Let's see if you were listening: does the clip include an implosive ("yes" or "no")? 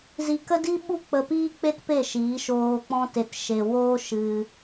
yes